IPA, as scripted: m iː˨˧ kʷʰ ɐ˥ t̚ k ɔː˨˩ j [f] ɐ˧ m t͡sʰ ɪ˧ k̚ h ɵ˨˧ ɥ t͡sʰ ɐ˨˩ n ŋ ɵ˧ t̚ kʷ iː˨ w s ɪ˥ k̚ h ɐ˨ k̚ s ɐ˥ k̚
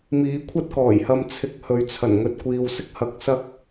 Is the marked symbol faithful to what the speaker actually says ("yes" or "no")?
no